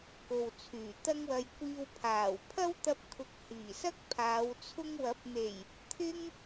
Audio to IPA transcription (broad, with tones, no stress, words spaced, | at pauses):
ko˨wt͡sʰyː˨˩t̪ɐ˥ŋwɐ˧j kʷiː˧wpʰaː˨˩w pʰɐ˥wt̪ɐ˧p̚kʰʊ˨k̚ hiː˨˩sɐ˥k̚pʰaː˨˧w t͡sʰʊ˧ŋwɐ˨˥p̚n̪e˨˩j | t̪ʰɪ˥ŋ